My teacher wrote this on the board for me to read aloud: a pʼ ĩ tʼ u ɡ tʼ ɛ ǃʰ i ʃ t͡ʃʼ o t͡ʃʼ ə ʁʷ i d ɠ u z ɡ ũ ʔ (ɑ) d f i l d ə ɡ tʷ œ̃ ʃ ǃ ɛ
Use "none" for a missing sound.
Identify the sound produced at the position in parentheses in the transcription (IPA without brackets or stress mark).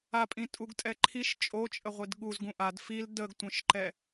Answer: a